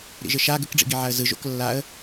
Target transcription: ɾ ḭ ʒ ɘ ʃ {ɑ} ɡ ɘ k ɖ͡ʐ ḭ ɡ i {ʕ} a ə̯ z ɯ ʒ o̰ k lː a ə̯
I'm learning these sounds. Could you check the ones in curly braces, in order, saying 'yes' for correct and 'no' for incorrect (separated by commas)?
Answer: no, yes